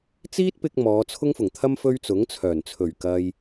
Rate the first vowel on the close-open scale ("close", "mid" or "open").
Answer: close